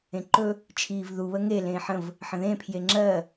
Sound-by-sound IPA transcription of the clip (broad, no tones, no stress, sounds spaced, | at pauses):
ẽ ǃ ɵ | t͡ʃʰ iː v ð u β ə ŋ e l ẽː ħ ə̃ v | ħ ə̃ ð ẽ pʰ j e ŋ͡ǁ ɜ